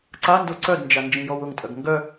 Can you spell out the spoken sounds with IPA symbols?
ǀando ǀœdnd͡ʒa nd͡ʒĩjɔwʊŋtʼœɡ ŋɡœ

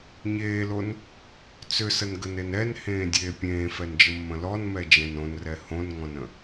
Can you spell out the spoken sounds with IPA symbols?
ɲeːlon | t͡sʏsənɡənen ɛnhẽːdʲeː pʲẽːfɛnd͡ʒəmːə̃ lɔnmɛd͡ʒɛ̃n õnrɛ hõnŋɔ̃nə̃

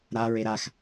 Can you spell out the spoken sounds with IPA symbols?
ɾaɹe ɾax

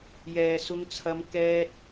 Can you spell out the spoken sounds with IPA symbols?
jɛː˧sʊ˥ŋt͡sʰɐ˥m kɛː˥t̚

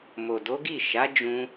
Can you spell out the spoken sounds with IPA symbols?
mo˨do˨˦ɡi˦˨ ʃa˨˦d͡ʒũ˧

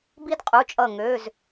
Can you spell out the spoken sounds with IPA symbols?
bi˦dqʼu˩˧˩t͡ʃʼʌ˧˩ ŋø˩˧˩z

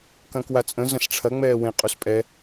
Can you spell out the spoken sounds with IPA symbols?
kɐ̃kwat͡sʼə̃ zɐ̃sʈ͡ʂʰɐ ŋ͡mɛːwẽ qʼuspʼɛ

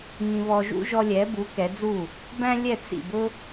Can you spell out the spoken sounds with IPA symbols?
ŋĩ˧βɔ˧ʒṵ˥ ʒɔ˧lʲɛ˩˥bu˩˥ kɛ˩˥d͡zu˥˩ | bæ̃˥ lʲɛ˥˩t͡sḭ˥˩bʊ˥

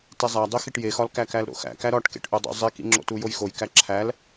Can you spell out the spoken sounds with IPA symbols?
tezˤædˤixiʈ jexɒlkæ kælɾo̰xæ̰kæ ɾɒʈkḛʈʔudˤo̰ zˤikḭ ŋ͡ǁo̰tujojxoj kæǁʰæl

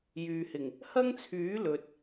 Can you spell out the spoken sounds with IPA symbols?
jyː˨hɪ˨˩ŋ | hɐ˥ŋt͡sʰyː˨˥ lɵ˨t̚

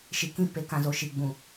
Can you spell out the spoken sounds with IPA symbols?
ʃi˨kĩ˦ pe˨kã˨zo˨ ʃi˨ɡ͡bũ˨

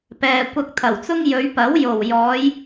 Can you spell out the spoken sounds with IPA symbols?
pɛː˨kʷɐ˧k̚t̪ʰɐ˨˩wt͡sʊ˥ŋ jɵ˨˧ɥpɐ˨˥w jo˨˩wjɔː˨˧j

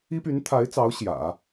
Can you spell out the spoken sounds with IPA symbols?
i˥py˧˥nt̪ʰa˧˥ɪ̯t͡sɑ˧˥ʊ̯ ɕjä̰˨˩˦

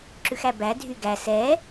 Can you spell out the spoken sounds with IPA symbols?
ǁʉxæbædʱy ɡæ sɛ

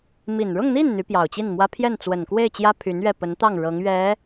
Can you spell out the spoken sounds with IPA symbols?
mi˨˩nɻʊ˥˧ŋn̪i˥˩n n̪y˧˥pjɑ˨˩ʊ̯t͡ɕi˥˩nmwä˥ pʰjɛ˥˩nt͡swə˨˩nkwe˥˩ɪ̯t͡ɕjä˥ pʰy˧˥nɥɛ˥˩pə˧˥nt̪ɑ˥˩ŋ ɻɤ˧˥ŋɥɛ˧˥

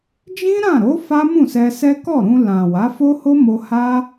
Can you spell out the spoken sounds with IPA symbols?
d͡ʒĩ˦ɾã˦˨ɾo˨˦ fa˦mũ˦˨sɛ˧sɛ˦ kɔ˦˨ɾũ˧ lã˨ wa˨˦ fo˦ho˦mo˧ ha˦

